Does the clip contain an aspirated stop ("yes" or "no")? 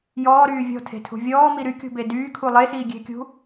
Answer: yes